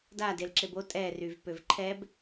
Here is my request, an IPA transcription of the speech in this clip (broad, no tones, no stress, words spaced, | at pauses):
dadelǁeb o tʼɛryvpøv ǃʰɛb